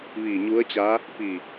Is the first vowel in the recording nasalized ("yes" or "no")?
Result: no